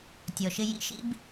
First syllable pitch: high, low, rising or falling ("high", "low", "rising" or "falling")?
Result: low